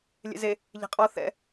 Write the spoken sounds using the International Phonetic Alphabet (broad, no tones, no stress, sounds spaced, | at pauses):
lʲ ḛ z e | ʎ e̤ qʼ ɔ θ ɛ̰